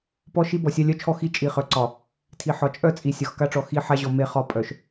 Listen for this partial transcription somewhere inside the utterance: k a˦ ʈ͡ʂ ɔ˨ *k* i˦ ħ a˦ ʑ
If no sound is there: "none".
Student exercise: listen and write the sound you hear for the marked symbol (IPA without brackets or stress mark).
x